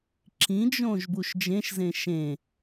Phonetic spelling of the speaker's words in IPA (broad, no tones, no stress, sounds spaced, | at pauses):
ǁ ĩ d͡ʒ õ ʒ b u ʃ d͡ʒ ẽ ʃ z ẽ ʃ ẽ